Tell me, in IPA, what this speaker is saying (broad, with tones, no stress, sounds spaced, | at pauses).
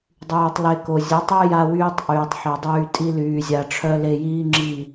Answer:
dˤ yː˨ tˤ l e˧ k o˨ zʲ ə˨˦ tˤ œ˦ j a˧ w yː˧ tˤ ʔ yː˨ tˤ ħ e˨ dˤ yː˧ tʼ i˧ l yː˨ zʲ a˨ ʈ͡ʂʰ œ˧ l e˧ j iː˦ ŋ͡ǁ i˦˨